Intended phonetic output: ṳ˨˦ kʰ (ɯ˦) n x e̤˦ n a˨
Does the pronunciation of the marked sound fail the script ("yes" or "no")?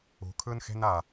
no